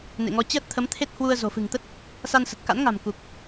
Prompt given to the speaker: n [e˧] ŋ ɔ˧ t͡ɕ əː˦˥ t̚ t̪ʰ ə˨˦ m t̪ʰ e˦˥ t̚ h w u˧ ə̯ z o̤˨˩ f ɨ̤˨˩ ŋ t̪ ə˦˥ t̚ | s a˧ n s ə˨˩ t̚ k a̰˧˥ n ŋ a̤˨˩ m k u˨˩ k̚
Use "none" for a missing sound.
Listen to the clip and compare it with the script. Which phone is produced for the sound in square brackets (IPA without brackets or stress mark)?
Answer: ḛ˧˨